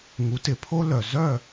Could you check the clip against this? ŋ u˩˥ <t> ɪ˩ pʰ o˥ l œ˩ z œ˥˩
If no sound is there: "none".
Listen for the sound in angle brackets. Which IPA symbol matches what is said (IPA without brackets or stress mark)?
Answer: t